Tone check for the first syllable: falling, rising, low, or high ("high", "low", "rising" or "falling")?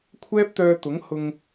high